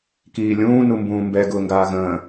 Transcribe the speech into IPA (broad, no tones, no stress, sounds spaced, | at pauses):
k iː lʲ ũː n u m b ũː m b ɛ ɡ ʊː ŋ ɡ aː ɣ ə̃ː